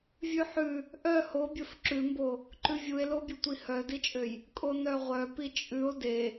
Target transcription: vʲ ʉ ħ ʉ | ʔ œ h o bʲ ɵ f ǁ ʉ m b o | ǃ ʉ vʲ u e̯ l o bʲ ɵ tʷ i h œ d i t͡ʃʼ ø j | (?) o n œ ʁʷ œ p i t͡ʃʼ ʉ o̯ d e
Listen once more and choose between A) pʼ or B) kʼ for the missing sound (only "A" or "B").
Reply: B